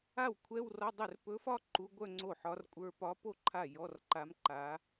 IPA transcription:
a˥˩ w kʷʰ ɛ˧˥˧ w r ɒ˧˥˧ dˤ ɵ˥˩ r p ɵ˧˥ f ɒ˥˧ ǃ u˧˥ ɡʷ œ˥˧ ŋ͡ǀ o˥˩ ħ ɒ˧˥ r kʷʼ ə˞˧˥˧ p ɒ˧˥ p o˥˧ ǃʰ a˥˩ j ɔ˧˥˧ r ǃ a˧˥ m ǃ a˧˥

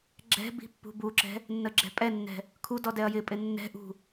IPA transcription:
ɡ͡ǁ ɛ̤ b i̤ pː ṳ b u ǁ ɛ̤ | nː ə ɡ͡ǁ ɛ̤ pʼ ɛ nː ɛ̤ | kʰ u d ɔ d ɛ ɐ̯ j ɪ pʼ ɪ nː ɛ̤ ʔ ṳ

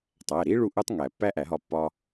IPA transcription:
tˤ æ˩˧˩ ɾ i˦˥ ɭ u˥˩ ʔ u˦˥ tˤ ŋ æ˨˩˦ pː æ˦˥ ʔ æ˨˩˦ ɦ ɒ˧ pː ɒ˧

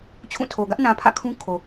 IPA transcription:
t͡ɕʰ ũ˦˨ tʰ o˨ ɡ ä˦ ʔ n ã˨ pʰ ä̰˦˨ kʰ ũ˦ kʰ o˨

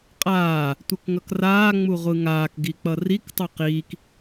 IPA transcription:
qʼ aː | tʷ ɯ k ŋ ʌ k r aː ŋ͡m u ʁʷ ɯ ŋ aː k ɡ i k͡p ʌ r i k tˤ u q iː k

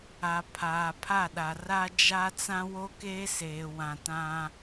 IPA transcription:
a˨ pʰ aː˨ pʰ a˦˨ ɗ a˨ r a˦ d͡ʒ a˦ t͡s ã˦ w o˦ k eː˦ s eː˨ w ã˨ t ã˦

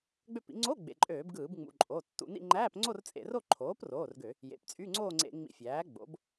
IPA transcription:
ɡ͡b ø˥˧ p ḭ˩˥ ŋ͡ǀ o˧˥˧ ɡ͡b ḛ˩˧˩ ǃʼ øː˧˩˧ b ɡ ɯː˧˩˧ b ŋ͡m ṵ˩˧˩ ǃʼ o˩˧˩ tː ṵ˧˩˧ n ḭ˥˧ ŋ͡ǃ æː˧˥˧ p ŋ͡ǀ o˥˧ r t͡sʼ ḛ˧˩˧ r o˥˧ ǃʰ oː˩˥ p r oː˩˧˩ r ɡ ø˧˩˧ | j ḛ˩˧˩ p t͡sʼ y˧˥˧ ŋ͡ǀ oː˥˧ ŋ͡ǀ ḛ˧˩˧ ŋ͡m ḭ˧˩˧ fʲ æː˩˥ ɡ͡b o̰˩˥ b

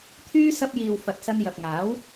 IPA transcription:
t̪ʰ yː˧ s ɐ˧ p̚ j iː˨ w f ɐ˨˥ t̚ s ɐ˧ n j ɐ˨ p̚ ŋ aː˨˥ w

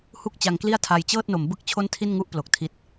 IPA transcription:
h u˥˩ k̚ t͡ɕ a˧ ŋ k l i˥˩ a̯ tʰ a˧ j t͡ɕ ɤː˥˩ t̚ n o˩˦ m b ɯ˦˥ k̚ t͡ɕʰ o˥˩ n tʰ i˥˩ n ŋ u˥˩ ʔ p l o˨˩ k̚ tʰ i˦˥ t̚

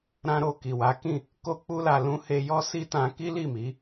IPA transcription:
ɾ ã˧ ɾ o˨ k i˨ w a˨˦ k ĩ˦˨ | k o˦ k͡p u˦ l a˧ l ũ˦ h e˧ j ɔ˦ s i˦ t ã˧ k i˦ l i˦˨ m i˨˦

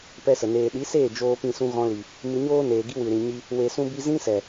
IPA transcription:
p ɛ˦ s ə˨ n eː˨ ɗ i˨˦ s eː˦˨ d͡ʒ oː˧ p ĩ˧ s ũ˧ ɣ ɔ̃˧ l i˨ | m ɨ˧ ɲ oː˦ n eː˨ ɡ i˦ w ɨ˨ ɾ ĩ˨ ɲ i˧ | w e˧ s ũ˦ b i˦ z ĩ˦ s ɛ˨

